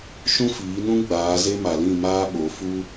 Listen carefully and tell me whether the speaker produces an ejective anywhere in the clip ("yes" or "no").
no